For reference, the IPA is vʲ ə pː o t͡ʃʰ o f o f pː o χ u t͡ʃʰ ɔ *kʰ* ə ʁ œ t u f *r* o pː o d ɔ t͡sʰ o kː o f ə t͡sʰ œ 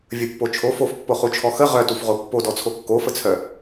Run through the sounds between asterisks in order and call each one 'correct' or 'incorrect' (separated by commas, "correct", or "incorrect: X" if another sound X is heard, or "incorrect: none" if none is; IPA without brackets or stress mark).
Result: incorrect: x, incorrect: ʁ